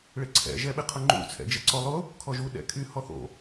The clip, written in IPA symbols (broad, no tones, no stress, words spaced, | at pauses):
ɭɪǀʰɛ̰ ʒɛɓɪqʰʊŋ͡ǃṵ t͡sʰɛ̰d͡ʒɛǀɔlˠʊ | kʰɔʒu ɗɛ̰kʰy hɔθo̰